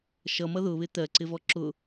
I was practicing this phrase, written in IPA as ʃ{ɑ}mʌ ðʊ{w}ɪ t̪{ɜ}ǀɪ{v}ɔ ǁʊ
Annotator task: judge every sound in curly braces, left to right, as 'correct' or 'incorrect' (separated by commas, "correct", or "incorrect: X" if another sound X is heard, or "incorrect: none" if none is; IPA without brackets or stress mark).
incorrect: ʌ, incorrect: β, correct, correct